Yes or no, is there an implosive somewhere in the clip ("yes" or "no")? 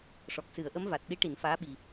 yes